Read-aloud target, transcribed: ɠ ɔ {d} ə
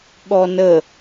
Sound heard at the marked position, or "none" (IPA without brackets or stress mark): n